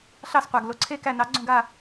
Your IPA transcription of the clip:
ɬɑ˦˨sqʷa˨˩ɡ lo˨˩ǀʰe˦˨ kæ˦˨nɑ˨˥ ɡ͡ǀõ˦˨ɡa˦˨

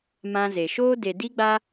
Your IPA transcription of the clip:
mã˧ze˨ ʃoː˧de˨di˧ɡ͡ba˧

